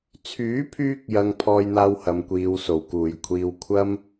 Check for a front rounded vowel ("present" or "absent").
present